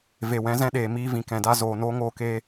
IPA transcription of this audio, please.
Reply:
v e˨ w ɛ̃˨˦ z ɛ̃˧ ɗ eː˨ m iː˧ v ĩ˨ k ɛ̃˨ d a˧ z oː˨ n oː˧ ŋ oː˧ k eː˧

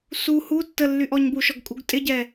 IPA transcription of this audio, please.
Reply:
s u h u tː ə lː y ʔ ɔ ɲ b u ʃ ɔ ɡ kʼ u ɡ tʼ ɪ ɟ ɛ

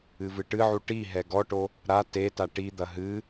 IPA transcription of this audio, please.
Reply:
ɨ v ɨ ʈ ɨ ʕ u ʈ i ɦ ɛ ɡ ɔ ʈ o | ɾ a t e t a ʈ i d̪ ɐ ɦ ɨ

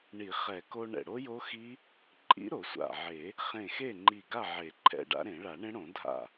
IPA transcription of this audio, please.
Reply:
ɳ i˨˩˦ χ ɛ˨˩˦ k o˧ ɳ ɛ̰˧˩ ɽ o˦˥ j o˦˥ x i˦˥ | ǃʼ ḭ˦˥ ɾ o˨˩˦ sʷ a̰˧˩ ʕ e˨˩˦ | χ ẽ˧˩ x e˥˨ ŋ͡ǃ i˧˩ ɡ a˥˨ ʕ e˨˩˦ ǃʰ ɛ̰˧˩ ɖ a̰˦˥ ɾ ẽ˨˩˦ ɭ a˨˩˦ ɳ ẽ˦˥ ɽ õ˨˩˦ dʱ a̰˥˨

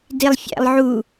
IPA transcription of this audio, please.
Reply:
d i lˠ fʲ æ̰ lˠ ʕ u

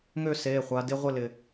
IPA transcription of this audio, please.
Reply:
ŋ ø˥˨ s eː˩˧˩ χʷ a˩˧ d ɪ˧˥˧ ʁʷ ɪ˥˨ l ɪ˩

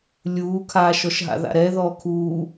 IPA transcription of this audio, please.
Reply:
lʲ uː kʰ aː ʃ ɔ ʃ ɦ a̰ ð a̰ ɾ ɛ ð ɔː kʰ uː

